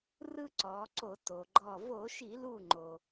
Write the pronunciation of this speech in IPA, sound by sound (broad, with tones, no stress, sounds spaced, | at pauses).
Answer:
r ɯ˦ ǀ ɔː˩˧ ǀ o˧˩˧ t o˩ ɡ͡ǃ ɔ˧˩ v o˧˩˧ ʃ i˧˩˧ l u˧˩ ŋ͡ǃ o˩